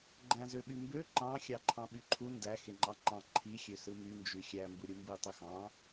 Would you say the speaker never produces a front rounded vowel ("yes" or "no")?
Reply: no